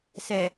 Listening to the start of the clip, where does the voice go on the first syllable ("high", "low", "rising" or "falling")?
low